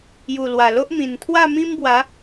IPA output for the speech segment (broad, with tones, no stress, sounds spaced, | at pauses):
j u˨˩ l w a˨˩ l o˦ ʔ m ĩ˨˩ n t̪ʰ w a˥˧ m ĩ˦ m b w a˨˦